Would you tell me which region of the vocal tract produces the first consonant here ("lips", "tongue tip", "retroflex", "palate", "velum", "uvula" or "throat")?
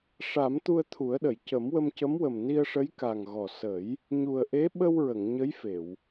retroflex